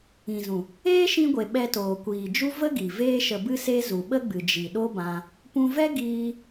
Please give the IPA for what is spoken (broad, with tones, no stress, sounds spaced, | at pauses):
ĩ˨ z ũ˨ | eː˦ ʃ ĩ˧ ɡʷ e˨ ɓ ɛ˧ t oː˨ kʷ iː˨ d͡ʒ u˦ v ə˦ ɡ i˨ v eː˦ ʃ ə˧ b ɨ˦ s e˦ z u˨ ɓ ə˦ ɡ͡b ɨ˨ d͡ʒ i˨ ɗ o˦ b ã˧ | p ũ˧ v ɛ˦ ɡ iː˦